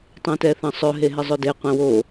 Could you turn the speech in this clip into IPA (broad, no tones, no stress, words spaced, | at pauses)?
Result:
tˤẽtɛθɐ̃sˤɵ ɦeɦɪzˤɵde qʷɛ̃wo